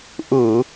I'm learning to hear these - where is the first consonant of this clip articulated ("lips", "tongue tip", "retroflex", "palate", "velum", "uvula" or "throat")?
throat